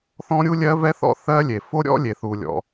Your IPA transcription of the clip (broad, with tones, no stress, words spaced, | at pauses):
θɔ̃˥ɾʲu˥lʲɜ˥ vɛ˥θɔ̰˥ θɜ˥lʲe˩ fo˥ ɾʲɔ̰˥lʲe˩θu˩lʲɔ̰˩